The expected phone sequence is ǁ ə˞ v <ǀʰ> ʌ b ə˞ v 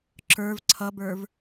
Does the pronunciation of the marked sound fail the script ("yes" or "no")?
no